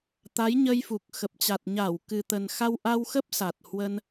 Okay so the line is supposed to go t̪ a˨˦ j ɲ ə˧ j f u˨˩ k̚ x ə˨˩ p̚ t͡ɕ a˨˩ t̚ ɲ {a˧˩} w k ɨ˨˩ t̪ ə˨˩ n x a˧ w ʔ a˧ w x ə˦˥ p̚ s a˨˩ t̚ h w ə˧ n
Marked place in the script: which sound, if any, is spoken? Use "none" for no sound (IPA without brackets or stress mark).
a˧˩